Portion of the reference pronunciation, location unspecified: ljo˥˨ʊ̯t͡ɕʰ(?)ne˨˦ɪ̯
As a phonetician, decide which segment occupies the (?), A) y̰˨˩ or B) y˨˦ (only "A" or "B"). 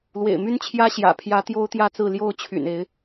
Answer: A